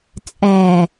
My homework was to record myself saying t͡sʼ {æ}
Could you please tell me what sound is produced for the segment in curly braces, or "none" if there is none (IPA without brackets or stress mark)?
æ